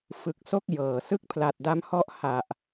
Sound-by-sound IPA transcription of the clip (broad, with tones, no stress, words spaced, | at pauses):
fɯ˨˩k̚so˥˩k̚ jɤː˨˩ sɯ˥˩k̚pʰla˨˩t̚da˦˥mhɔ˥˩ʔ ha˨˩ʔ